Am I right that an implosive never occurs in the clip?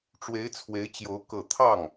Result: yes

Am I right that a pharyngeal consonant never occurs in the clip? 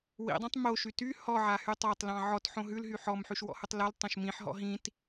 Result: no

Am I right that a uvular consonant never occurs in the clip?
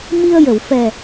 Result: yes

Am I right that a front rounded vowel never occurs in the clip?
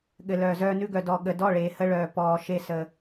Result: no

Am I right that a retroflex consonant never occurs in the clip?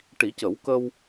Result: no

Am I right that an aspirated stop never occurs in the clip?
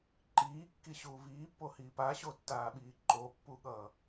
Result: yes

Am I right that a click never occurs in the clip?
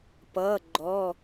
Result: no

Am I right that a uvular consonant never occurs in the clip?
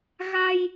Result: yes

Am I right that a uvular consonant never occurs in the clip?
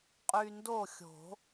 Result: no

